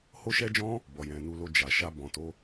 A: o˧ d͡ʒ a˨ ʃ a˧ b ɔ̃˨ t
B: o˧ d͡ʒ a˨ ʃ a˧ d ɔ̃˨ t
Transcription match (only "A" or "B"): A